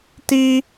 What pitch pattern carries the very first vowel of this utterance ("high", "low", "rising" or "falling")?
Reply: high